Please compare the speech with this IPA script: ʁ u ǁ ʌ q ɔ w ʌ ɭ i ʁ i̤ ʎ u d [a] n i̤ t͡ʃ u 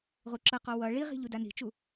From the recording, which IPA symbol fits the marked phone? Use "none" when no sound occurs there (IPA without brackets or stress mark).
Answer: a